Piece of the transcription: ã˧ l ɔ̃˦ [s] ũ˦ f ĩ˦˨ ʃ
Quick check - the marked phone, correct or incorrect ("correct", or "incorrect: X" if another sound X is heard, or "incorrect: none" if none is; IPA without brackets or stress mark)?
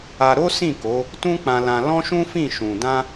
incorrect: ʃ